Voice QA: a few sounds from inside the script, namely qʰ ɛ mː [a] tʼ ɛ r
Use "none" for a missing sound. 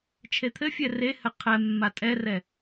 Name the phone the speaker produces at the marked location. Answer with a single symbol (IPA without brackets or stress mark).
a